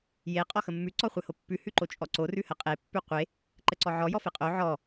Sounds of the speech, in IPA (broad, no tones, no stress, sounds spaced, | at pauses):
j e qʼ ɔ x ə mː ʉ ǀ ɔ χʷ e h o pː ʉ h ʉ ǃ o t͡ʃʼ ɔ ǀ o r ʉ h ə qʼ e pː ʉ qʷ e | ǃ ə ǀ ɔ ʕ ɔ j ɔ f e qʼ o ʕ ɔ